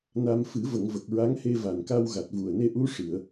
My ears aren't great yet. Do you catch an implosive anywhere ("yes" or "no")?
no